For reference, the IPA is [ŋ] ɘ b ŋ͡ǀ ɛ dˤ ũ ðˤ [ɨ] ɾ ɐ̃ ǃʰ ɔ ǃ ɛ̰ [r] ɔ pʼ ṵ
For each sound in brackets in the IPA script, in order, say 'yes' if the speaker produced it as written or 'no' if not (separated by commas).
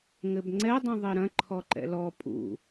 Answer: yes, no, no